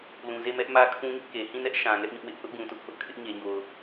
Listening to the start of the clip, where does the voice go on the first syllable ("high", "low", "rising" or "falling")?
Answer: low